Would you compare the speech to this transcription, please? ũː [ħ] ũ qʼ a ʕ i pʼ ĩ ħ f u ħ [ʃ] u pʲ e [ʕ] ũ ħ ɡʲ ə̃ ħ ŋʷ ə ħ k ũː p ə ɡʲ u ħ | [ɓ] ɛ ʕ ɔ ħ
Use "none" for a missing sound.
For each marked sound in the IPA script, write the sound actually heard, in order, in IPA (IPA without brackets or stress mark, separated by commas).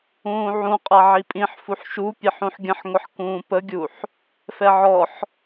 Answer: ʕ, ʃ, ħ, f